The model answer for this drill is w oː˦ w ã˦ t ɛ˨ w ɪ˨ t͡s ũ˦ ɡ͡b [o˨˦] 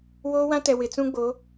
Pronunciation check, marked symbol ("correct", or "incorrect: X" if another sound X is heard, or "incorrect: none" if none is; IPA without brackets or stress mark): correct